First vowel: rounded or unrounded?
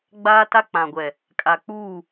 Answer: unrounded